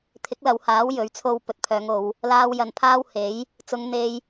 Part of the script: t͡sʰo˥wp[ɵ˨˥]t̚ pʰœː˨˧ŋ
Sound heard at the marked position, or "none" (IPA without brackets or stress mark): ɵ˧